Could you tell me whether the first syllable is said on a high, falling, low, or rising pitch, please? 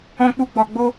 high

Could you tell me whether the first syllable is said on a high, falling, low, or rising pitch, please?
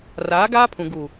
rising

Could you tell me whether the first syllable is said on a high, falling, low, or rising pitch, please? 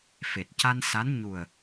low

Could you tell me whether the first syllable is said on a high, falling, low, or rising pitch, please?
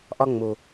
high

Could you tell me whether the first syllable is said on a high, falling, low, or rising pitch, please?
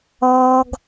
high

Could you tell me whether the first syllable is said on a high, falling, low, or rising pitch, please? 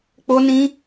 high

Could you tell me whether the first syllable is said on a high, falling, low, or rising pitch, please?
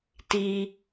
high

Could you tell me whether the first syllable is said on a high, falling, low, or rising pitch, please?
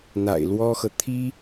low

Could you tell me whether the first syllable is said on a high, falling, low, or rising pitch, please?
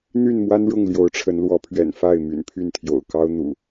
falling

